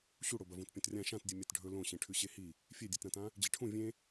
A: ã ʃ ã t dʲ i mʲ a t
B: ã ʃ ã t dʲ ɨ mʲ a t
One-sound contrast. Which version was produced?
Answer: B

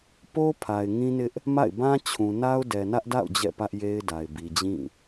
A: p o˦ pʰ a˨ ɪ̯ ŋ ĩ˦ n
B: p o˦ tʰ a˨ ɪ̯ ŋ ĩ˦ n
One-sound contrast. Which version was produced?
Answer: A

